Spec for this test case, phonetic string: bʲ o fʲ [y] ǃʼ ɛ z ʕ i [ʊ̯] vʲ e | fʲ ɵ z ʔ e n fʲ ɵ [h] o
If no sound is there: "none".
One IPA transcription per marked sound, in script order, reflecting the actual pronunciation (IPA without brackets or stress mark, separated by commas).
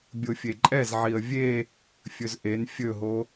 e, ə̯, ɦ